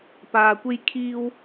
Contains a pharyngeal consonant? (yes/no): no